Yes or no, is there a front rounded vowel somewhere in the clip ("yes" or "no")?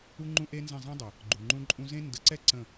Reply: no